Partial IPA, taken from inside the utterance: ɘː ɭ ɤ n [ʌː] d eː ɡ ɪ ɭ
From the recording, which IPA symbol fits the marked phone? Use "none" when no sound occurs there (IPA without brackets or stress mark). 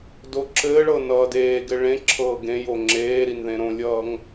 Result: ʌː